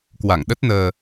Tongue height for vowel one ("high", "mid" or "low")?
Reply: low